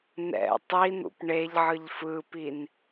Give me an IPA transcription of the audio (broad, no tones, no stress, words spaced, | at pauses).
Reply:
nɛ̰ tˤin̪ṵp ɳeʎʕɯʎ fɯpin